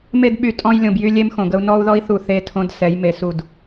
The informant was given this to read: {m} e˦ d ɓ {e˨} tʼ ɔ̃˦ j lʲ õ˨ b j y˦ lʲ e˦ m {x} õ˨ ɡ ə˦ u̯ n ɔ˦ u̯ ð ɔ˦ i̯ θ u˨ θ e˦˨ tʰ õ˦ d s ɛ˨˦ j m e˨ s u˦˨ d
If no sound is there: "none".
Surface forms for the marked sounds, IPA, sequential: m, y˨, x

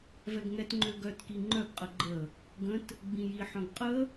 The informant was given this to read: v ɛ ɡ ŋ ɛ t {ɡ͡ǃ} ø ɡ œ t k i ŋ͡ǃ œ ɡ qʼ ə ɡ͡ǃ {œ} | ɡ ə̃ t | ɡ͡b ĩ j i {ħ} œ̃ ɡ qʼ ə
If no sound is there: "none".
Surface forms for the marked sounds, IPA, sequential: ŋ͡ǃ, ə, ħ

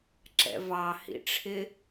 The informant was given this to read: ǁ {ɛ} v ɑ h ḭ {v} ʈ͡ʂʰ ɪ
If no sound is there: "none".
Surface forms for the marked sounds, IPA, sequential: ɛ̰, none

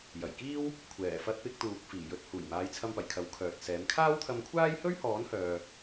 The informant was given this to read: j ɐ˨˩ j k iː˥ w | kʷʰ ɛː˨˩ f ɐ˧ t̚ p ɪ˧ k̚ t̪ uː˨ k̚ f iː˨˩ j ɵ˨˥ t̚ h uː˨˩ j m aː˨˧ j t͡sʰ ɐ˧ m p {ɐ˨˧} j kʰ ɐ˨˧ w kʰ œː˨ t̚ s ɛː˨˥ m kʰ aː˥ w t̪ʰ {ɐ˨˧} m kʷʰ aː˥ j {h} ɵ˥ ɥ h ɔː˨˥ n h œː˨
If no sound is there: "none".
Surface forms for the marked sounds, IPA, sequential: ɐ˨˩, ɐ˧, h

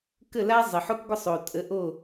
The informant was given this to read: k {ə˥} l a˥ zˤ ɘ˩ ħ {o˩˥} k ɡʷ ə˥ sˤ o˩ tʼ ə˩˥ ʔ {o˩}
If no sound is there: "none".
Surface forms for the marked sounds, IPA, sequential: ə˥˩, o˥, o˥˩

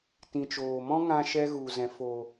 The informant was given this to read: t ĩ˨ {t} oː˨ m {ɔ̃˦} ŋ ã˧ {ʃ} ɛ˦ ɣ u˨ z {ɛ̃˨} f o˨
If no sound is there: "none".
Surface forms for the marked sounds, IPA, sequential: t͡ʃ, ɔ̃˦, ʃ, ɛ̃˨

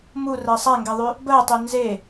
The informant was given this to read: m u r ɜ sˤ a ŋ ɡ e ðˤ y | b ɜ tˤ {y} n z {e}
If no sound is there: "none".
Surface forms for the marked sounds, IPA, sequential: y, e

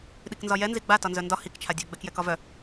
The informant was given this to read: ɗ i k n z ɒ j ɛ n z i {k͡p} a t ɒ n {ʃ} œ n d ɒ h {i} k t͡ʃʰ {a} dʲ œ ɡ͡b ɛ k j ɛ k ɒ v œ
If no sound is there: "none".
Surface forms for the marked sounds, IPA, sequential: ɡ͡b, z, i, a

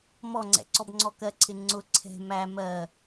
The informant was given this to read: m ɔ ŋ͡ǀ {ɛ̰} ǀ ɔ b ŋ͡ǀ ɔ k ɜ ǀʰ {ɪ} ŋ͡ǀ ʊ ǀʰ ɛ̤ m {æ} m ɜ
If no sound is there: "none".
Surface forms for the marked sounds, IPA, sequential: ɛ̰, ɪ, æ

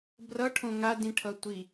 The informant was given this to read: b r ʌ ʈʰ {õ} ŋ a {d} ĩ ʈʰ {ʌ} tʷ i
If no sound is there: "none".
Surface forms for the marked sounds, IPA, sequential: õ, d, ʌ

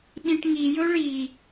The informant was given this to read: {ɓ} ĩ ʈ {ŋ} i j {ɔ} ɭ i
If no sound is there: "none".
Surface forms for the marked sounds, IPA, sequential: ɓ, ŋ, ɵ

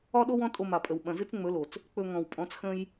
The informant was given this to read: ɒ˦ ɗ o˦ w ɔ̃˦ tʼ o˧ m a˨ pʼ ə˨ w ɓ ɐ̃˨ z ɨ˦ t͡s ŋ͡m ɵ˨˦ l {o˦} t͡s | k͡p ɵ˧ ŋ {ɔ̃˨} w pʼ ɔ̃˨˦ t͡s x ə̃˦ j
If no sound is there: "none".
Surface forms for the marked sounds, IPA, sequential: o˨, ɔ̃˨

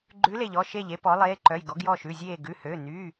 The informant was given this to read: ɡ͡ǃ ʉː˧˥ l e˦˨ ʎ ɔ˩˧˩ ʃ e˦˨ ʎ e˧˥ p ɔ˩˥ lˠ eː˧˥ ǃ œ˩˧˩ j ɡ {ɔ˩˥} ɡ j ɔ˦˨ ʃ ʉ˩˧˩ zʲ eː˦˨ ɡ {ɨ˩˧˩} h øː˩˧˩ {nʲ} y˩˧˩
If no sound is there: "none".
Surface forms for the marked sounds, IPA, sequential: ɔ˩˥, ʉ˩˧˩, n

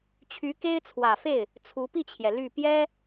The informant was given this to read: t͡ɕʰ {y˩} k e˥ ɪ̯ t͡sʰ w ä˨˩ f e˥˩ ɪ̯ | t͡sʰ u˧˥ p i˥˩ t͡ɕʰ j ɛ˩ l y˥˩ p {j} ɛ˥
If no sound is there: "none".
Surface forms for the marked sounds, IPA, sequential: y˧˥, j

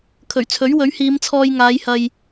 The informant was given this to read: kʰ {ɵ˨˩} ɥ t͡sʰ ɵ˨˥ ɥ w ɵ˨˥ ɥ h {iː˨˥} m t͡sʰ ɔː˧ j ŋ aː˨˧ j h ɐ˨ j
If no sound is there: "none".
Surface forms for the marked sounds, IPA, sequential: ɵ˨˩, iː˨˧

